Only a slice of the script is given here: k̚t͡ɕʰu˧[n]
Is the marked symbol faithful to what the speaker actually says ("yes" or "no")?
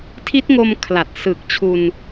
yes